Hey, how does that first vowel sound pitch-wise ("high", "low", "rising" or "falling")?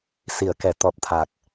low